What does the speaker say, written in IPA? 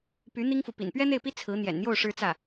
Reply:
py˧˥ n̪i˥ŋfu˨ pḭ˨˩npɥɛ˥n̪e˥˩ɪ̯pi˥ t͡sʰɹ̩˧˥ n̪jɛ̰˨˩nn̪jo˥˩ʊ̯ ʂɻ̩˥t͡sä˥˩

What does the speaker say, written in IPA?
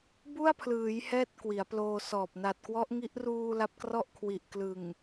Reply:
bu˥˩a̯pʰlɯː˩˦j hɛː˥˩t̚kwi˩˦a̯ploː˧sɔː˨˩p̚ na˨˩t̚kwɔ˦˥ʔŋi˦˥ʔ ruː˧ la˦˥p̚krɔ˥˩ʔkʰwi˨˩ʔ klɯ˨˩ŋ

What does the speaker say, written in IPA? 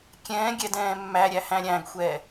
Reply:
kʲɛ̃ːɡʲɛdɛ̃ː mːæɾʲæhæ̃ ɾʲæ̃ɡxʷɛː

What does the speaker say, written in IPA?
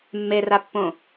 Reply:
mːerapːõ

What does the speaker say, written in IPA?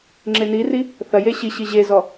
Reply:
ŋ͡ǁeniri | θɐje ɕiɕi ʑezɔ

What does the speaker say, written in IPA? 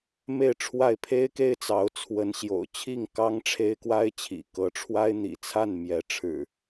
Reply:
me˥˨ɪ̯ʈ͡ʂʰwa˥˨ɪ̯ pʰe˦ɪ̯ke˦ɪ̯t͡sɑ˨˦ʊ̯t͡sʰwə˨˦n ɕjo̰˨˩ʊ̯t͡ɕʰi˥˨ŋ kɑ˦ŋʈ͡ʂʰe˦ɪ̯ kwa˦ɪ̯t͡ɕʰḭ˨˩ kɤ˨˦ʈ͡ʂʰwa˦ɪ̯n̪ḭ˨˩t͡sʰa˥˨n mjɛ˨˦ ʈ͡ʂʰɻ̩˨˩

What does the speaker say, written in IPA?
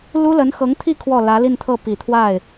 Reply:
lu˥lə˧˥nxɤ˧˥ŋt̪ʰi˥˧ kʰwɔ˥˩ lä˧˥li˥˧nt̪ʰɤ˥˩ pi˨˩t̪ʰwa˥˩ɪ̯

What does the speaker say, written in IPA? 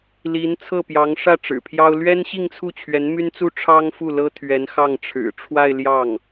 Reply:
li˧˥n t͡sʰɤ˥˩pjɑ˧˥ŋʂä˥˩ ʈ͡ʂɻ̩˨˩pʰjɑ˥ʊ̯ lɥɛ˥nɕi˥˧ŋt͡sʰu˥˩t͡ɕʰɥɛ˧˥n my˥nt͡su˥ ʈ͡ʂʰɑ˥ŋfu˥˩ lɤ˥t̪ʰɥɛ˧˥n xɑ˥˩ŋ ʈ͡ʂʰɻ̩˨˩ʈ͡ʂʰwa˥˧ɪ̯ ljɑ˥˩ŋ

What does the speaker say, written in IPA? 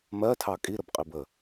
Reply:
mɜtʰɑ kʼiɾəbqʼib ə

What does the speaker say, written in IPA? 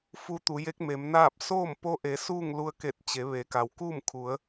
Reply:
fu˧t̪u˩˧je˧˥k̚ me˩˧mnaː˥˨p̚ soː˥˨mpo˧ʔe˩˧ suː˥˨ŋlu˧ə̯ ke˧˩t̚t͡ɕe˩˧ ʋe˩˧ka˩w kuː˥˨mkʰu˩˧ə̯

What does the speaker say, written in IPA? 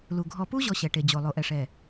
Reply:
lu˨ ɡʱɔ˨pu˦ ʑɔ˦ɕɛ˨ʈe˨ d͡ʑo˨ lˠo˨ʔɛ˨ʂɛ˨

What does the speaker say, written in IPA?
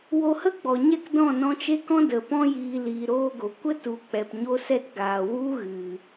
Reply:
wo˧hə˦ɡ͡bɔ˨ɲɛ˦˨k dɔ̃˦˨nɔ̃˧t͡ʃe˦kɔ̃˦ də˨pɔ̃˦jiː˧ liː˧ɾoː˦ɡo˨ kʷə˦tu˨˦ k͡pɛ˧pɲo˦sɛ˦t ɡaː˨ wu˦ɣɨ˨

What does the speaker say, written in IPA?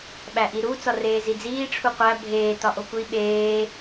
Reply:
ɓæʔiɾu t͡sɒreːzid͡ziː ʈ͡ʂʰuqʷæ bʱeː tɒʔokʷi ɓeː

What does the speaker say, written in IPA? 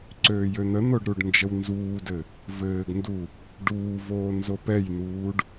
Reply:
ǀøːjøn̪ən̪oɖ ɾuɖnd͡ʒəwnzuːdɘ | vɘːɡndu | ɖuːvoː nzopɛjn̪uːɖ

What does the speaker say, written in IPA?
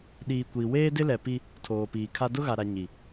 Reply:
ɗiː˨kʷiː˨ weː˦dɪ˦lɛ˨ pi˦ | tʰoː˨piː˨ kʰa˦ dʊ˦ɣa˨ɾa˨ ɲi˨

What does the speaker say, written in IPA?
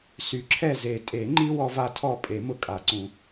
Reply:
sy˨˩˦ǁʰɛ˥˨ ze˨˩˦tʼe˨˩˦ŋ͡ǃi˦ wɔ˦va˦tʰɔ˥˨ pʼe˨˩˦mʊ˥˨kʼa˨˩˦ǀũ˨˩˦

